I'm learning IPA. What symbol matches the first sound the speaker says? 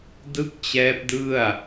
d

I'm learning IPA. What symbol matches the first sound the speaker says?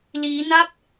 l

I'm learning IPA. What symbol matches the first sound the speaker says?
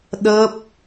ɗ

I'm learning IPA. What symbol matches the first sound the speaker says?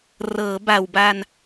r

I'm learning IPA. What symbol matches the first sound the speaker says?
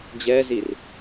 d͡ʑ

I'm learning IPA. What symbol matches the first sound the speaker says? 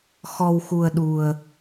x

